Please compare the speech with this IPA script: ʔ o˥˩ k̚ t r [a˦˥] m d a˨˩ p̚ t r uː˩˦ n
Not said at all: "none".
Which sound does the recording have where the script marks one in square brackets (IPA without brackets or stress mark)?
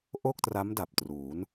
a˦˥